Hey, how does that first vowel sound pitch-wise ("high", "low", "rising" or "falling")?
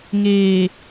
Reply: low